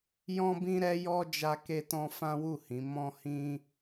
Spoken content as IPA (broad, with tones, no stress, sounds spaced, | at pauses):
j ɔ̃˦ b ĩ˦ ɾ ɛ˦ j ɔ˦ d͡ʒ a˧ k e˧ t ɔ̃˧ f ã˦ w u˦˨ h ĩ˨˦ m ɔ̃˦ h ĩ˦